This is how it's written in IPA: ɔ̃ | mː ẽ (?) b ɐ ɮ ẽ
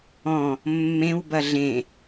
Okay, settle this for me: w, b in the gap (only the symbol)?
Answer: w